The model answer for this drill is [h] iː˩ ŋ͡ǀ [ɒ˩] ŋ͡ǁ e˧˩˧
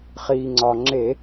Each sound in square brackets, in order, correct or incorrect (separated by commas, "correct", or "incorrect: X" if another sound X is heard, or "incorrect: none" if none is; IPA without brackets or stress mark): incorrect: χ, correct